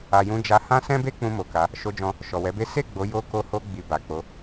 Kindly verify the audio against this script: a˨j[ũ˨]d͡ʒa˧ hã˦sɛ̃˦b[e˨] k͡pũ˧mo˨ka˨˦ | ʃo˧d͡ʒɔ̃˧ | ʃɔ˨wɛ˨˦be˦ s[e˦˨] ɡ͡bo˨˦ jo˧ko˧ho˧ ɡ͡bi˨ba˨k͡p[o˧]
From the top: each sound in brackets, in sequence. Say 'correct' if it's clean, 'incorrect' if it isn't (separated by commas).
incorrect, incorrect, correct, incorrect